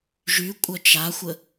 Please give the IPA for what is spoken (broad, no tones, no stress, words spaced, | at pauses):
ʒykʷʼœ t͡ʃaxʷə